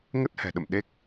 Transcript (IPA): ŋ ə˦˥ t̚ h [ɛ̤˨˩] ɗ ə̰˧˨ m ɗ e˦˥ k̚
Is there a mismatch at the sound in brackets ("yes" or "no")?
no